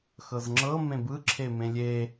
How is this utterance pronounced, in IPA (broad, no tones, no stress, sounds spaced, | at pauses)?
x ɤ z ŋ͡ǁ ɤ m ẽ b ɯ ǁʰ e m ẽ lʲ e